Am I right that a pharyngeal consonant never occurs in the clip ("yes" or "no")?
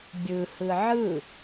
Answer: no